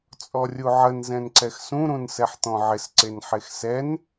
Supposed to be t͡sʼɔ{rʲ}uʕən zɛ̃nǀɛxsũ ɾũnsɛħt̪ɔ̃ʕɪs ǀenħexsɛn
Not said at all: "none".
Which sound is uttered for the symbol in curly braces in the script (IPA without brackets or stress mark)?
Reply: rʲ